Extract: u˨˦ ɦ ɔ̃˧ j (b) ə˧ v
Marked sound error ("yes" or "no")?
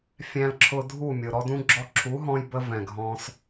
no